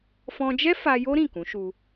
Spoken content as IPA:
fɔ̃˧d͡ʒɛ˦ fa˧jo˦ ɾĩ˦˨kũ˨˦ʃu˧

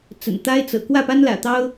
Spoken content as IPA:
t͡sə̰˨˩nt̪a˦ɪ̯t͡sɤ̰˨˩ kwä˥˨pa˦nlä̰˨˩t̪ɑ˦ʊ̯

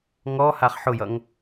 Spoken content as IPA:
ŋɔ haχħʊjʌŋ

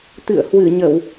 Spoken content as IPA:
t̪ɨ̰˧˨ə̯ hwɨ˧˩ɲə˧˩˨w

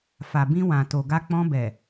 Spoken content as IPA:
fa˨bĩ˧ wã˨to˨ ɡa˧k͡pɔ̃˧bɛ˨

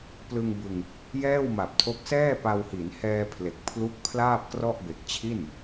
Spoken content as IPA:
plɯ˧ŋbɯ˧ŋ | jɛː˥˩wma˨˩p̚tʰo˦˥k̚ sɛː˥˩pa˧whi˩˦n hɛː˧pʰle˨˩k̚pʰlu˦˥k̚ pʰlaː˥˩p̚krɔ˥˩ʔ be˨˩k̚t͡ɕʰi˥˩n

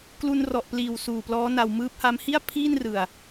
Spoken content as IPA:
klu˧nrɔ˨˩ʔpliː˨˩w suː˨˩plɔː˦˥na˧w mɯː˦˥p̚ha˦˥m hi˥˩a̯pʰiː˥˩nrɯ˨˩a̯

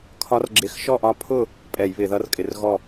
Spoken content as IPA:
kʰɒ˧˥rɡ͡ǁɪ˧˩˧x ʃɔ˥˨ʔɒ˧˥pʰʊ˥˨ | pʼɛ˧˩˧jβɪ˧˩˧ðʌ˧˥r kʼɪ˧˩˧rɣɔ˥˨

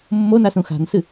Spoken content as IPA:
mːonasũ xa̤nsɨ

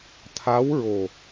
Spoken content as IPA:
t̪ʰa˧˥wɹo˨˩

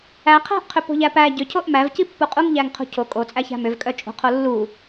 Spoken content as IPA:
æ qʰæ̤ʔ qʰʏpo̤ʎæpæ ɟʏ cʰoʔmæv cipːuqʼuŋ ʎæŋqʰo̤cʰo kʼot͡sʼæçæ̤ mʏvkʼœt͡ʃʼo̤qʰo lːu

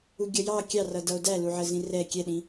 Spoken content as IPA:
uɡʲʌjɑ kʲɑrʌ dʌo̯dæluʕə zĩrɛ kʲɛɗĩ

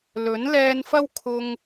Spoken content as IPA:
lɵ˨˥n lɛː˧nfɐ˥wkʰʊ˧ŋ

